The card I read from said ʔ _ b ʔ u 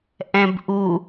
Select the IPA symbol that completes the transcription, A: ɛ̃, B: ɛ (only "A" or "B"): A